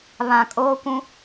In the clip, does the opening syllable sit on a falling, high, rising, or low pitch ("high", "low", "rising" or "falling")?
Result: low